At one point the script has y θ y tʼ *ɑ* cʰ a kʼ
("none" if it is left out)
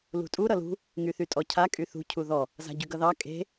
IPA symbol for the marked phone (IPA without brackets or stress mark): ɔ